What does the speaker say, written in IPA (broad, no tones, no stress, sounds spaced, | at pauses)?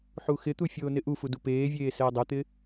ħ u x ɪ t̪ u fʲ oː n ɪ ʔ u f u d u p eː vʲ eː s ɛː dˤ ɛ t̪ ɪ